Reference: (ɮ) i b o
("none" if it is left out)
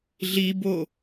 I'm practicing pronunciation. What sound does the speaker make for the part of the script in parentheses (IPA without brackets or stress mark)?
ɮ